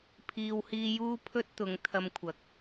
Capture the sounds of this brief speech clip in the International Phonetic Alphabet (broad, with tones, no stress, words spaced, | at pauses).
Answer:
pʰiː˧whiː˥ juː˥ pʰɵ˥t̚t̪ʊ˨˥ŋ t̪ʰɐ˧mkʷʰɐ˨˥k̚